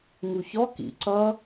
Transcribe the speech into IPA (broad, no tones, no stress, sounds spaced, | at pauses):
ŋ u ç ɔ k ḭ ǀ ʌ